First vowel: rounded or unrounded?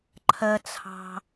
unrounded